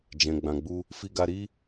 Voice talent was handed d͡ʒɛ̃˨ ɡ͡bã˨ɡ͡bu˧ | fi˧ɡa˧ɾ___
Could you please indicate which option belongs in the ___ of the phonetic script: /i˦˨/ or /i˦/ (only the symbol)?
i˦